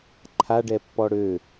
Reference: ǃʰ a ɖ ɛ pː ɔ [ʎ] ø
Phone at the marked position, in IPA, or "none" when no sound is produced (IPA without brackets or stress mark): ɽ